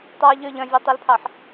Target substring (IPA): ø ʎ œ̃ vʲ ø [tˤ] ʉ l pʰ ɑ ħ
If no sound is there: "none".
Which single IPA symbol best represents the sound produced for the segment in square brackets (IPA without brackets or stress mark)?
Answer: tˤ